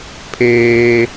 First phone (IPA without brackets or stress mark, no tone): pʰ